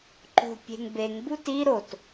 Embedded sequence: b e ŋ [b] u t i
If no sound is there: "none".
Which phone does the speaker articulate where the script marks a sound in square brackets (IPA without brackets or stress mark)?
b